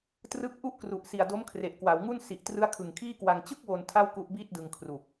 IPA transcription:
t r ɯ˦˥ k̚ ʔ u˥˩ ʔ k r u˨˩ ʔ s i˨˩ a̯ d o˦˥ m kʰ r e˨˩ ʔ k w a˩˦ w ŋ u˥˩ n s i˨˩ ʔ t r ɯ˦˥ a̯ kʰ ɯ˨˩ ŋ kʰ iː˥˩ k w a˧ ŋ t͡ɕ ɯ˥˩ k̚ w o˧ n tʰ a˥˩ w k u˦˥ ʔ b iː˥˩ t̚ d ɯ˧ ŋ kʰ r u˨˩ k̚

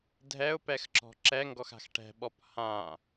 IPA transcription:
dʱ ɛ ʊ̯ p ɛ x ǁ ɔ̤ ǁ ɛ ŋ ɡ ɔ x a̤ x ʈ ɛ̤ ɓ ɔ p h ã

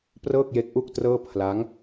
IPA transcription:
p r ɤː˥˩ k̚ j e˦˥ k̚ ʔ u˥˩ k̚ t r ɤː˥˩ pʰ l a˦˥ ŋ

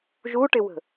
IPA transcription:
ʒ u ʈ ɪ w ə̤

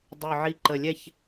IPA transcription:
dˤ y˨˩ ʕ i˨˩ ǃ ə˨˩ lʲ ɛ˦˨ ç

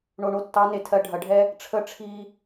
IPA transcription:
ɳ o˧ ɳ o˦˨ tː ɑ˦ n e˨ tʰ ɜ˧ ɖʱ ɐ˨˦ ɖʱ ɛ˦ | ʈ͡ʂʰ ə˧ ʈ͡ʂʰ i˧

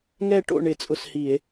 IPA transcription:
ŋ ɛ˦˨ ʈ o̰˦˨ ɳ ɪ˧˩˧ t͡sʼ ʊ˦˨ s h i˧˩˧ e̯

